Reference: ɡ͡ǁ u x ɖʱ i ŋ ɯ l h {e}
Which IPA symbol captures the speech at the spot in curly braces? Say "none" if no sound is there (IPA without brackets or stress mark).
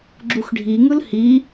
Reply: i